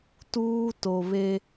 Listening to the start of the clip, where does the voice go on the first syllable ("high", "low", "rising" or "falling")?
high